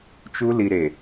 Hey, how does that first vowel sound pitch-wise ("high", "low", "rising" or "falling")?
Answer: high